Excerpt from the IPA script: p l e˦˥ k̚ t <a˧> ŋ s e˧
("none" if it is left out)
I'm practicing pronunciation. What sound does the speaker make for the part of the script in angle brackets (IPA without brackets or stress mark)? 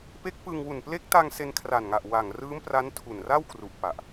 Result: a˧